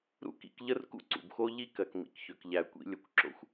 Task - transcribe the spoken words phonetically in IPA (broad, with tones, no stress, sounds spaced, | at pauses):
ɾ ṵ˥ k ḭ˧ k ʎ ə˥ r k ṵ˥ ǀ ṵ˩ b x o˥ ʎ i˥ k ɜ˩ k m ḭ˩ k ç ø˩ k ʎ æ˩ kʷ ḭ˧ lʲ ə˩ kʷ ǁ o̰˧ xʷ